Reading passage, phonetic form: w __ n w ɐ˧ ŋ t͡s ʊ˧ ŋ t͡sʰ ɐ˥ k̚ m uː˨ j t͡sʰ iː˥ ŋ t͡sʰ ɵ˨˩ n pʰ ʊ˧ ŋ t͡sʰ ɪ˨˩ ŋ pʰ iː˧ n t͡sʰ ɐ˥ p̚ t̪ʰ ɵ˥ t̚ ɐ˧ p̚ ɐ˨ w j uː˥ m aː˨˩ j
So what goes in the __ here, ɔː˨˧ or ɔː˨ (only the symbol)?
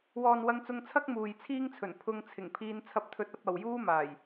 ɔː˨